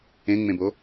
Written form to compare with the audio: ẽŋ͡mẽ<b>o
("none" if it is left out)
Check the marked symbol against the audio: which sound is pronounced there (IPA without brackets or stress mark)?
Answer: b